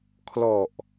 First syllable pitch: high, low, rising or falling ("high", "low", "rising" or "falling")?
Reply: low